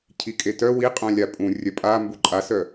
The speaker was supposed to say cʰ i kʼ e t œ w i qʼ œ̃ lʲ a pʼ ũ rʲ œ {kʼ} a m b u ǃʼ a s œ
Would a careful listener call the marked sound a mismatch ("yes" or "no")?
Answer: yes